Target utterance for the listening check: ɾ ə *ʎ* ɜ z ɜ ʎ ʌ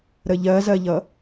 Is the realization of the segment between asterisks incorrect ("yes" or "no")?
no